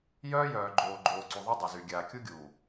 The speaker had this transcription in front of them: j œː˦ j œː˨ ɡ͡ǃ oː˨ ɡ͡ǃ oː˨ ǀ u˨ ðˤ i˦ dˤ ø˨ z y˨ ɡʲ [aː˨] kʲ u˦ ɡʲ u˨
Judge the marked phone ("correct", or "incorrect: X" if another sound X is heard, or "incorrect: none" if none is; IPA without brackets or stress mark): correct